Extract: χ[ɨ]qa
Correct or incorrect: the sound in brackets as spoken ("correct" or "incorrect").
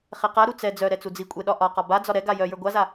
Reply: incorrect